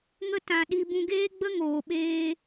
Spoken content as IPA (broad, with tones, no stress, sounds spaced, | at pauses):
ŋ ə˧ t ã˨ ɗ i˧ b ũ˧ ɡ eː˦ ɡ͡b ə˦ ŋ oː˨ ɓ eː˧